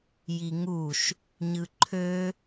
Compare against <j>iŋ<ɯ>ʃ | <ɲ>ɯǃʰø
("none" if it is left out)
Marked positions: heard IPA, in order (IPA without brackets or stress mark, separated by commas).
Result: j, u, ɲ